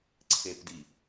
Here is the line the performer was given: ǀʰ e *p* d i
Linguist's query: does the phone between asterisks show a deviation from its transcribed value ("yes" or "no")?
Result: no